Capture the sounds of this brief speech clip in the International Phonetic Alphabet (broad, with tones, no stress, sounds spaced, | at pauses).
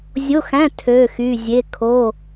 zʲ o˧˥˧ x æ̃˧˥˧ tʰ ø˧˥˧ x y˧˥˧ zʲ e˧˥˧ kʰ o˧˥˧